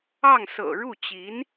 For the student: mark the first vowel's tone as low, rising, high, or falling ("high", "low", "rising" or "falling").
falling